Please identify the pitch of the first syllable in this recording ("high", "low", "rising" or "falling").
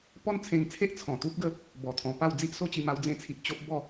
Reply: high